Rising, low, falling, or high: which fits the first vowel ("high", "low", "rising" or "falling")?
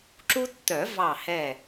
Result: high